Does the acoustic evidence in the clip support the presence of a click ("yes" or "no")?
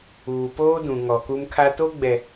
no